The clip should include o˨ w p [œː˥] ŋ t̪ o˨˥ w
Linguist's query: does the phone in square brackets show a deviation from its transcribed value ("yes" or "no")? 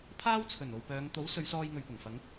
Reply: yes